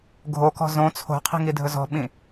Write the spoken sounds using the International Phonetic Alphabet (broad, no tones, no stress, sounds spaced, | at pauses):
ɡʱ o k ɔ̤ z õ t͡sʰ o̤ qʰ i̤ ŋ i dʱ ɵ z ɔ̤ ɓ ĩ